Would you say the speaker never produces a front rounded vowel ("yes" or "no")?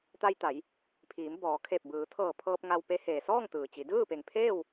yes